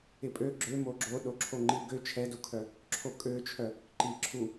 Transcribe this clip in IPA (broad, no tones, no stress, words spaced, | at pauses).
ɪpʼø ɡ͡ǁø moɡ͡ǁoɗo ǁʰoŋ͡ǃiɡø t͡ʃʰɛdukʰœ | ǁʰokʼøt͡ʃʰœ | ǃi ǁʰu